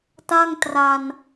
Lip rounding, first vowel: unrounded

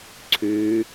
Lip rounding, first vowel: rounded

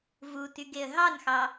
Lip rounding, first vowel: rounded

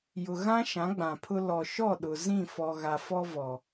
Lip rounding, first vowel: rounded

